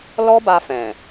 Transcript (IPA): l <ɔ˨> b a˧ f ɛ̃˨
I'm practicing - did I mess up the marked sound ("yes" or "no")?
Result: yes